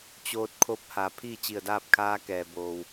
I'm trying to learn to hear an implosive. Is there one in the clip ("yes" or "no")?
no